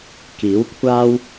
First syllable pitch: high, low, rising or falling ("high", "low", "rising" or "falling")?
rising